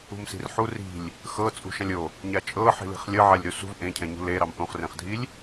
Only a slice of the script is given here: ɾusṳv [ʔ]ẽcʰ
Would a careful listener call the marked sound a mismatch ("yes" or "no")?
no